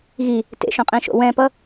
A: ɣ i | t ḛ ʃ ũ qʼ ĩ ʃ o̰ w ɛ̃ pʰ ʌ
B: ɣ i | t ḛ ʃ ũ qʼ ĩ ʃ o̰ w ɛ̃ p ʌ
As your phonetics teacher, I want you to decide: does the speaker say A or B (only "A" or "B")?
B